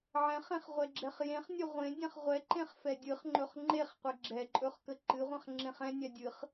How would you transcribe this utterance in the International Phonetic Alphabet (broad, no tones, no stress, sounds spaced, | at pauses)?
ʕ ɛ̃ χ ẽ χ ʁʷ ɛ ɡ͡ǁ ɛ χ j ẽ χ nʲ ɵ ʁʷ ẽ dʲ ɛ̃ χ ʁʷ ɛ ǃ ẽ χ f ɛ dʲ ɨ χ ŋ͡ǃ ɵ χ ŋ͡ǃ e χ qʷ ɛ ɡ͡ǁ ɛ ǃʼ ɵ χ k ə ǃ ɨ ʁʷ ɛ̃ χ ŋ͡ǁ ẽ χ ɛ̃ nʲ ɛ dʲ ɨ χ